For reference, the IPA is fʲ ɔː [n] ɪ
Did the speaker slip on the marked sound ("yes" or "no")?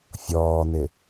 no